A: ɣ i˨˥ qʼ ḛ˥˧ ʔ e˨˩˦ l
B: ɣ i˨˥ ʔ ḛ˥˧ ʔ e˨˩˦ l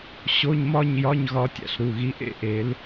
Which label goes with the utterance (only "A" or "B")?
B